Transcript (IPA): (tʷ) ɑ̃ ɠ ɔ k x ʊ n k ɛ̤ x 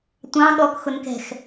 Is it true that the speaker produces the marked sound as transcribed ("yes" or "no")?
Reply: yes